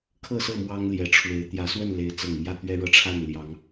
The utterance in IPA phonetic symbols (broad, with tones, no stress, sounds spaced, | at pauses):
kʰ ɤ˥˨ s ɤ˥˨ m w ɑ˦ ŋ l j ɛ˨˦ ʈ͡ʂʰ w e˨˦ ɪ̯ t̪ j ä˨˦ s w ə˥˨ n l e˨˦ ɪ̯ t͡s ɤ˨˩ ŋ m j ä˥˨ t̪ ɥ ɛ˦ ɻ ɤ˦ ʈ͡ʂʰ a˥˨ n l j ɑ˨˦ ŋ